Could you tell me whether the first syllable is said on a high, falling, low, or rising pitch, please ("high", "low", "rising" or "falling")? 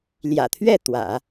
low